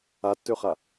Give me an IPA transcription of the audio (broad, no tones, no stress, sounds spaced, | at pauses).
a tː ø χ a